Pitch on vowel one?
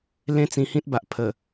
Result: high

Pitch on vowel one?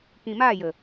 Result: low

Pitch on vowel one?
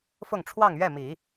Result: falling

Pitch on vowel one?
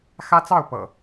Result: high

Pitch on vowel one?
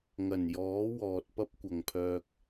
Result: low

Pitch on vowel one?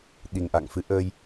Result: low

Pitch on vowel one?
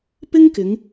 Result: high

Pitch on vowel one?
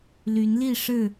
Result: rising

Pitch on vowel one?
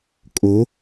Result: rising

